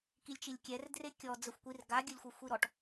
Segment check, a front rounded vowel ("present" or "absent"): absent